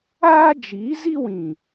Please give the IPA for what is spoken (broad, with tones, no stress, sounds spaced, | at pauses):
aː˦ d͡ʒ iː˨˦ z i˦ w ĩ˨